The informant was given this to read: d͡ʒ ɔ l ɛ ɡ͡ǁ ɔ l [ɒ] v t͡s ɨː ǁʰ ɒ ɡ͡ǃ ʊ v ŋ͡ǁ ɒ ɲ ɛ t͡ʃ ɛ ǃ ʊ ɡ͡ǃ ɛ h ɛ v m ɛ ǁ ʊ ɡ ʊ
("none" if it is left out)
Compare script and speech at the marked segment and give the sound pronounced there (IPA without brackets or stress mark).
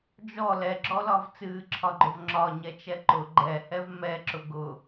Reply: ɒ